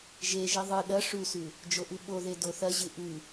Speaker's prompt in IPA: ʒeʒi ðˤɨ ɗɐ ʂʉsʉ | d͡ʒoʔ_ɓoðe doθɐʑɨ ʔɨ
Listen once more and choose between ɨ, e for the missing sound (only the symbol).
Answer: ɨ